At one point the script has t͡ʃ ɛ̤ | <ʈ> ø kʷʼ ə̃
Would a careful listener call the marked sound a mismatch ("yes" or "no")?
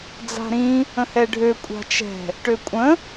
no